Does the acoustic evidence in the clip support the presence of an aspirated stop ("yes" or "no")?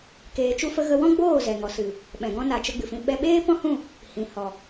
no